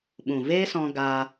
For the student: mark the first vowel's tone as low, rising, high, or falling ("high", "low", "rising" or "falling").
low